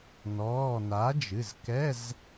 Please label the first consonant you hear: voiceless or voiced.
voiced